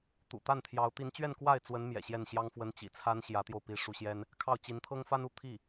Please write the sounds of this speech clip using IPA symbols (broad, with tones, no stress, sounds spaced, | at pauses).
t̪ ṵ˨˩ t̪ a˥˩ n t̪ʰ j ɑ˧˥ ʊ̯ t̪ i˧˥ n t͡ɕ ɥ ɛ˥˧ n k w a˥˩ ɪ̯ t͡s w ə˧˥ n m j ɛ̰˨˩ ɕ j ɛ˥˩ n ɕ j ɑ˥ ŋ f w ə˧˥ n t͡ɕ ḭ˨˩ t͡sʰ a˥ n ɕ j ä˧˥ t̪ j o˧ ʊ̯ p i˧˥ ʂ u˧˥ ɕ j ɛ˥ n | kʰ ɑ˥˩ ʊ̯ t͡ɕ i˧˥ n t̪ʰ ɤ˥ ŋ f a˥ n u˥˧ t̪ʰ i˥˩